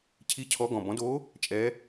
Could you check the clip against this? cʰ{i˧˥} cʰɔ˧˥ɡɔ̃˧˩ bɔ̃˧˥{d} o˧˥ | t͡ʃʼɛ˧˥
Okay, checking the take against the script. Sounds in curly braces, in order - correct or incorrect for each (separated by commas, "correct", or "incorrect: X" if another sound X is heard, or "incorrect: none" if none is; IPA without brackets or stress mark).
correct, correct